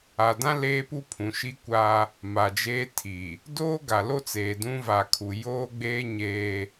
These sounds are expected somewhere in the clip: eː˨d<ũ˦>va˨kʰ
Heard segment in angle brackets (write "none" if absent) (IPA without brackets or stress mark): ũ˦